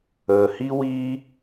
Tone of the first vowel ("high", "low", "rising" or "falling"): low